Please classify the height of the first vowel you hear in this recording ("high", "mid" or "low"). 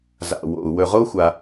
low